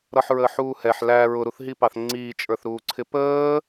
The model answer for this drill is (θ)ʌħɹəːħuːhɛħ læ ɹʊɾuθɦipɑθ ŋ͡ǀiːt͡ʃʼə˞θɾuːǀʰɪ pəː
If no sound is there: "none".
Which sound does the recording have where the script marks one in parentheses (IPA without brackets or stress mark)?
ɾ